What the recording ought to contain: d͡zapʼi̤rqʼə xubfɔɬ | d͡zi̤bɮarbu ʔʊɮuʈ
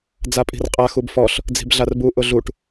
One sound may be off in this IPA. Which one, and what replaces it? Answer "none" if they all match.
ə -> a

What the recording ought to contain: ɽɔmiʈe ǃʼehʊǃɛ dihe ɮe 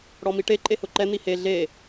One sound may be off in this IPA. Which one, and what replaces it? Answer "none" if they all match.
d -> n̪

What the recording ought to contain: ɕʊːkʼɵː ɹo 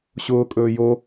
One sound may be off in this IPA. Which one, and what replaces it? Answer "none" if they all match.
ɹ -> j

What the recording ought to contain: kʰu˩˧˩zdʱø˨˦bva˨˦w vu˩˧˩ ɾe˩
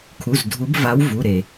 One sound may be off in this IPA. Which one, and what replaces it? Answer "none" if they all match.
ø˨˦ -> u˨˦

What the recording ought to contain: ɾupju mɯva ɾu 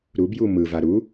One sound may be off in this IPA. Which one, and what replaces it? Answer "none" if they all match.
p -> b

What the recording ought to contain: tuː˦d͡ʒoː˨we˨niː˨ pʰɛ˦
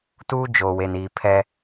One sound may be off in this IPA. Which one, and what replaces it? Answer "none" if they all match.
none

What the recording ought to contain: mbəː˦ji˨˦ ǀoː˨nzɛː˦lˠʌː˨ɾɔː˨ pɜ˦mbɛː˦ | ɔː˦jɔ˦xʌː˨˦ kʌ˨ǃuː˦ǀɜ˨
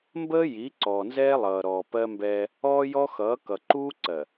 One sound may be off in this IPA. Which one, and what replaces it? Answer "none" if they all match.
oː˨ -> ɔː˨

